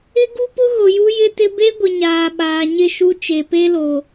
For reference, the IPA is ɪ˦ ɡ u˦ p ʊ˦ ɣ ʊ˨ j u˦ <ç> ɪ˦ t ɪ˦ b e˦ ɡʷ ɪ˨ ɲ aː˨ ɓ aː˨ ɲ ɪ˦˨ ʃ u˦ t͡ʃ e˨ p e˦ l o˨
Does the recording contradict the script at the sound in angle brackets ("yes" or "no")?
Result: yes